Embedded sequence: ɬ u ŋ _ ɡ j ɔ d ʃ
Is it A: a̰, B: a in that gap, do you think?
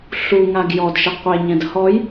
B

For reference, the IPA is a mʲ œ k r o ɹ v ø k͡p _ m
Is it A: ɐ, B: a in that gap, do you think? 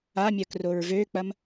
A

